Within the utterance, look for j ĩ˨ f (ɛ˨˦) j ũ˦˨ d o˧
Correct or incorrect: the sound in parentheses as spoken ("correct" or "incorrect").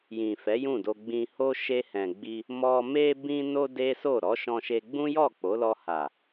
correct